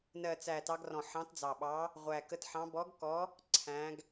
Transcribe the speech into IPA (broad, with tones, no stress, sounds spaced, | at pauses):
n ɜ˨˩ t͡s æ˨˩ t ɑ˨˦ ɡ r ɔ̃˨˩ ħ ɑ̃˨˦ t d͡z ɑ˨˩ ɓ ɑ˨˦ | ʁʷ æ˨˩ k ə˨˦ t ħ ɑ̃˨˦ b ɔ˨˦ ɡ k ɔ˨˦ | ǀʰ æ̃˨˦ ɡ